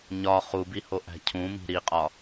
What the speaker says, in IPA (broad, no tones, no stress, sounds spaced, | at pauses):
ɲ ɒ χ u b i h o ʔ æ̤ cʰ ũ m i̤ ɾ i qʼ ɒ